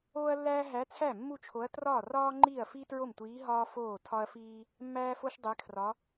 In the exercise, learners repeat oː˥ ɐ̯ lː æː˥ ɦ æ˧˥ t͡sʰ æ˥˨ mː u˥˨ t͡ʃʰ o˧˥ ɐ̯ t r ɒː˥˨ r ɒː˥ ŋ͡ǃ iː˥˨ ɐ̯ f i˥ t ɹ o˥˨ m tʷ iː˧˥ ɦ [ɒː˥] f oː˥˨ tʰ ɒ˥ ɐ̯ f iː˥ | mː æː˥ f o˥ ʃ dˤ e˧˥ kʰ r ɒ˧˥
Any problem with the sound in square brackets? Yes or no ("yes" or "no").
no